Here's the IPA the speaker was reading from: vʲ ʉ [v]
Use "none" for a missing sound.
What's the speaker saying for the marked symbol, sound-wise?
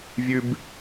b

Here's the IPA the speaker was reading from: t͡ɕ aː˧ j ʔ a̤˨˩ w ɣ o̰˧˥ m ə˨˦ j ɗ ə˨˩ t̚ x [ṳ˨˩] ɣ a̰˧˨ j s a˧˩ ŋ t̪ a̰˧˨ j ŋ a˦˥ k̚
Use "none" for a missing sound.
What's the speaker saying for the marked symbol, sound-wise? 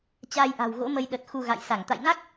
u˧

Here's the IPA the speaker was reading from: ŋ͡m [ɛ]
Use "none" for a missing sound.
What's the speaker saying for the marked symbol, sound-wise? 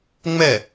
ɛ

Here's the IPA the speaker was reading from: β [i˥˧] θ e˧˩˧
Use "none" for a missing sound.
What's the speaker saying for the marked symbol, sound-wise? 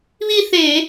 i˥˧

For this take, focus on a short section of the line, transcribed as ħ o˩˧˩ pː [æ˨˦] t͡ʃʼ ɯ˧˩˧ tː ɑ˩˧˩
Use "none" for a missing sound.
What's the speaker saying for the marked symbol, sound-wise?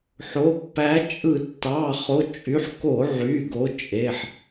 æ˨˦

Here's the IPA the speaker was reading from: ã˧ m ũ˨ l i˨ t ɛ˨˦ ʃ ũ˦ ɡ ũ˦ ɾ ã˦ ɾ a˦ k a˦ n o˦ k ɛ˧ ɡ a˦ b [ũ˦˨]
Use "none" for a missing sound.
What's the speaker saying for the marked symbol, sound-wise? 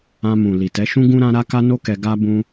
ũ˦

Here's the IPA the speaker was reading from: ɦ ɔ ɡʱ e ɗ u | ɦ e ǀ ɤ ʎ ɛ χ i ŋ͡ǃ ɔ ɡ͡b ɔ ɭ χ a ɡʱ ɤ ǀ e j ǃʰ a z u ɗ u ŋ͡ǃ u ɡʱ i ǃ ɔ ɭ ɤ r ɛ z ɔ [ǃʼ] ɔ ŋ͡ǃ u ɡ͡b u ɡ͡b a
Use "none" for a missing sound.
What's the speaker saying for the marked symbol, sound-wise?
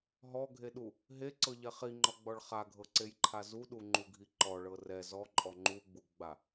ǃʼ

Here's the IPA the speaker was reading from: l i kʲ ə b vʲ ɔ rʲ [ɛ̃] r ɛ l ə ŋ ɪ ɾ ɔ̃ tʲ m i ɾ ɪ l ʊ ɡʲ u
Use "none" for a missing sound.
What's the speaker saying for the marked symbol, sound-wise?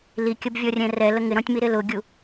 ɛ̃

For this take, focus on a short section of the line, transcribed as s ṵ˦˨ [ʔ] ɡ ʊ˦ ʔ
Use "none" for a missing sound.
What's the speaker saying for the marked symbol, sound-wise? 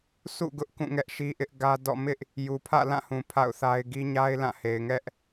none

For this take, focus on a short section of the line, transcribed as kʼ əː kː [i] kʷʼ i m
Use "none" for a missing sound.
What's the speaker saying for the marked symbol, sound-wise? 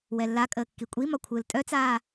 i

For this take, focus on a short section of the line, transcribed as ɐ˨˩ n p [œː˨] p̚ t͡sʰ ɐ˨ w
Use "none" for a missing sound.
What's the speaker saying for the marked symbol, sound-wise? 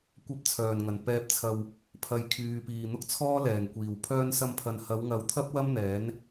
ɛː˨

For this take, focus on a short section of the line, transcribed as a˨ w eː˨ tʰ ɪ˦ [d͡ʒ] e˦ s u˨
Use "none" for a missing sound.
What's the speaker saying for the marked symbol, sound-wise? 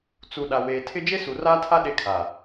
d͡ʒ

